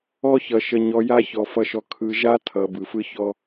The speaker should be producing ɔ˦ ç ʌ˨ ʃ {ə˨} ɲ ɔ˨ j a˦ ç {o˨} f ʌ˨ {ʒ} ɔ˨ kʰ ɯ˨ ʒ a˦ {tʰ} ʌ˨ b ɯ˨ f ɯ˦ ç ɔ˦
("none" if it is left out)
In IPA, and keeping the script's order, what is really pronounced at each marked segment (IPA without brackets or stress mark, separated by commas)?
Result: ə˨, ɔ˨, ʃ, tʰ